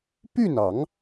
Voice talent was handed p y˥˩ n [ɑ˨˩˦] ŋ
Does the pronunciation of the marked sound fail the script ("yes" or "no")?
no